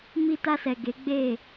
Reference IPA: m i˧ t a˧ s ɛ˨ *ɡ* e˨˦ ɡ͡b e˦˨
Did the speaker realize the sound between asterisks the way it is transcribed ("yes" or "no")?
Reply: yes